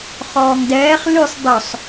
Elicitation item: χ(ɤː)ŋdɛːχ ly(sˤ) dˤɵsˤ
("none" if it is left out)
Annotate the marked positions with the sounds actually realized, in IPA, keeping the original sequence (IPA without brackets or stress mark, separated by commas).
ɔː, sˤ